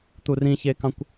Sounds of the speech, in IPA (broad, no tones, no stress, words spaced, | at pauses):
t̪urĩçekɑ̃kʷ